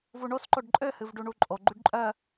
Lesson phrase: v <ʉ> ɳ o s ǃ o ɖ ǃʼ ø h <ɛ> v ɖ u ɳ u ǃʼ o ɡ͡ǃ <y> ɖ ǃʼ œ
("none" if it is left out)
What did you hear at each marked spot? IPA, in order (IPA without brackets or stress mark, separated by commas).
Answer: u, ɨ, y